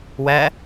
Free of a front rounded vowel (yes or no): yes